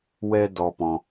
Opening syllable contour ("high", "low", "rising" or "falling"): high